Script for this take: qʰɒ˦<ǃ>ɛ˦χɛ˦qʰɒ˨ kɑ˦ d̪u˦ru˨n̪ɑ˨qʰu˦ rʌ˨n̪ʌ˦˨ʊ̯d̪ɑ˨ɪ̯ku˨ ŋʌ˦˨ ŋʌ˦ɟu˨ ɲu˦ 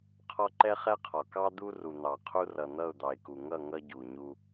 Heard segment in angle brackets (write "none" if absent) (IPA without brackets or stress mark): ǃ